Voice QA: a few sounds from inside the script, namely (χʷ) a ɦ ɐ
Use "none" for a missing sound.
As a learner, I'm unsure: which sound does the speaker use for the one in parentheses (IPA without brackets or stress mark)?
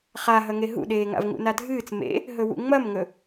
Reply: χ